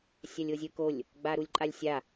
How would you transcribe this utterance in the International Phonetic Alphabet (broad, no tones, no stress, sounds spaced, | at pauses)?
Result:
sʲ a lʲ o zʲ ɯ k o lʲ | ɡ͡b a ɾ u lʲ ǃʼ a lʲ sʲ a